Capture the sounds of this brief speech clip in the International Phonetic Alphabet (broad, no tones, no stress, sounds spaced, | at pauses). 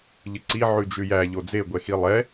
ʎ ɨ ǀ i ʕ ʉ d͡ʒ ʉ j æ ʎ o d͡z e ɡʷ ɛ x i lˠ ɛ